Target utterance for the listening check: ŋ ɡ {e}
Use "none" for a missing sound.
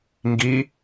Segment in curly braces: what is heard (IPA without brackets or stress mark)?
i